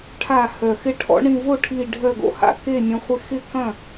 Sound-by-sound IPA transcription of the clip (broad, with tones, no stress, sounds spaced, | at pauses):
ʈʰ a˧˩ h œ˩ x ɪ˧ ʈʰ ɔ̰˧ ɳ ĩ˧˩ v o˥˩ ʈʰ i˧˩ ɖʱ œ˧˩ ɡ o̰˧ h a̰˥˩ k e˥˩ nʲ ɐ̃˧ χʷ ɪ˧ x ɪ˥˩ k ɐ̃˥˩